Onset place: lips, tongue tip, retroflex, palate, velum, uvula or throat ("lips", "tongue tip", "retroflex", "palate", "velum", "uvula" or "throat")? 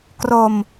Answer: velum